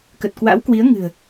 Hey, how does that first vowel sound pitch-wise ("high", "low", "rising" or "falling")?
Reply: low